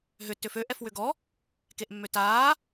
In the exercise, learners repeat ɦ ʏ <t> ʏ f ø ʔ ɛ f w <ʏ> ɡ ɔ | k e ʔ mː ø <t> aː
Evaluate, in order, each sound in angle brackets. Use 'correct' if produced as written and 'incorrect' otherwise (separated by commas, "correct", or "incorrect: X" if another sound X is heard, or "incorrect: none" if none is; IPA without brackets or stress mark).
correct, correct, correct